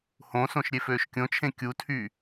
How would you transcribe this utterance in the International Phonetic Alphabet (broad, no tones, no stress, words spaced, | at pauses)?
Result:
hõsõʃ ɾʲeføːʃkʲõt͡ʃʰẽ kʲutʰy